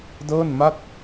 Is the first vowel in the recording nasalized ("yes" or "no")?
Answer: no